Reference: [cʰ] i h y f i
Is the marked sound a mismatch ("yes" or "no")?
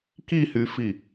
yes